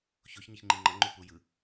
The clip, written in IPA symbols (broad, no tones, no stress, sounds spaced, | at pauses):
ç o ç ɲ ɯ ç ŋ͡ǃ i ŋ͡ǃ ʌ ŋ͡ǃ u p u j ɯ